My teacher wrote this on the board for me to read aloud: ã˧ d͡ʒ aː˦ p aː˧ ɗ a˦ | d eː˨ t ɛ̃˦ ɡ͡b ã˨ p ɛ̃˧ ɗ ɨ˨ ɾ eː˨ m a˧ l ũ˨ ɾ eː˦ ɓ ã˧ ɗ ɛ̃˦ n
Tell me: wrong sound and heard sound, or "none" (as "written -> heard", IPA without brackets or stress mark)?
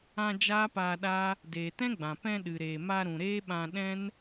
l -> ɾ